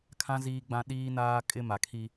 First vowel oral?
no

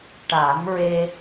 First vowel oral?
yes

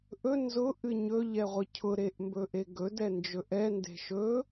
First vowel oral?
yes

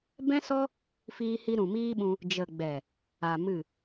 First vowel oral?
no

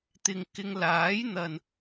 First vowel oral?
yes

